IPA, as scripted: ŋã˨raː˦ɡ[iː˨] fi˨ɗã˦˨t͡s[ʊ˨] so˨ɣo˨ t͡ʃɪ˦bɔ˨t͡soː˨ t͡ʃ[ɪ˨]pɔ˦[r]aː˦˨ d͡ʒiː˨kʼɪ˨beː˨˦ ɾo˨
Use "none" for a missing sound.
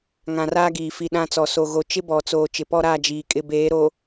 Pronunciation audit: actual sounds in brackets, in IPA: iː˨, ɔ˨, ɪ˨, ɾ

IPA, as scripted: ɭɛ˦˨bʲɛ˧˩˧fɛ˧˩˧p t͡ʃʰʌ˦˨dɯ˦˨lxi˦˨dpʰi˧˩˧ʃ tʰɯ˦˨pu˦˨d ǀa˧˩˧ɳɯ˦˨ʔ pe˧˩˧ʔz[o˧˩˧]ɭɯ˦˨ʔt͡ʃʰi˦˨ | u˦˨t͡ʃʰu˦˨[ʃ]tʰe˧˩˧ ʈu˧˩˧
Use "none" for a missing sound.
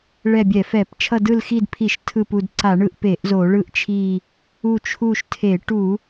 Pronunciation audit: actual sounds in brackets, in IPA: o˧˩˧, ʃ

